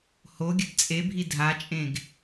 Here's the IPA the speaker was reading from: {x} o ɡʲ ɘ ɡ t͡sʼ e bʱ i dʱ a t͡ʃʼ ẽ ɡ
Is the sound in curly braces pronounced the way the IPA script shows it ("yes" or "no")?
no